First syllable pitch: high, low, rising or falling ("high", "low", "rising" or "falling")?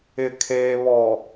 low